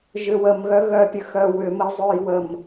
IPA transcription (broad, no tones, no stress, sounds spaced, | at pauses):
ʒ ʏ w ə m ɣ œ ɣ œ pʲ ə x œ w ʏ m ə j zˤ o j w ə m